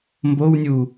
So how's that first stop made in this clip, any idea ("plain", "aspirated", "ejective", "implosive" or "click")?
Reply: plain